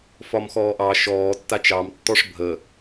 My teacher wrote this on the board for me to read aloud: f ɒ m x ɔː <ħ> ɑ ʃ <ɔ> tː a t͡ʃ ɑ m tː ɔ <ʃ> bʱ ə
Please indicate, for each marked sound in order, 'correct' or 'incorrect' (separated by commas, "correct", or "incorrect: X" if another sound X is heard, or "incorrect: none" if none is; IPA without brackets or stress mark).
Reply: incorrect: ʔ, incorrect: ɔː, incorrect: ʂ